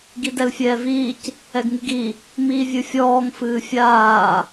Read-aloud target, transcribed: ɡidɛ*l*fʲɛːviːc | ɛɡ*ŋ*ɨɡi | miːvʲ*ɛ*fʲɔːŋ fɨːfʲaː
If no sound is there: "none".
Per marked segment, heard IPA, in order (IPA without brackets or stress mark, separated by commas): l, ŋ, ɨ